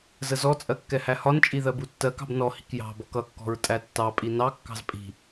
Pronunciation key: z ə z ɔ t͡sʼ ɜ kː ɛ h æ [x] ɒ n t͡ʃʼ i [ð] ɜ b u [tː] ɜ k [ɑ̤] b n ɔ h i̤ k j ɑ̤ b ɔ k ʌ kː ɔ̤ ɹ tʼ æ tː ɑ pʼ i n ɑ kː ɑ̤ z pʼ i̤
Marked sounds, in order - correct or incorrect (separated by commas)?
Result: incorrect, correct, correct, correct